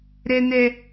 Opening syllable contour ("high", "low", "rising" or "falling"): high